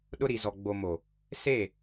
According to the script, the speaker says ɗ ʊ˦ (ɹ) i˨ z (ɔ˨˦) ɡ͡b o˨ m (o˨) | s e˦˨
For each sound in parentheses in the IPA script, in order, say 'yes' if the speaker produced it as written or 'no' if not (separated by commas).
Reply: no, no, yes